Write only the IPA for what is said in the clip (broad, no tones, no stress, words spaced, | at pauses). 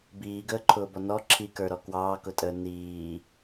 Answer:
biːɡəːǃʰʊːbɔ nɔ ǁʰikə˞ɾɔ kwɑːkʊtʼəː niː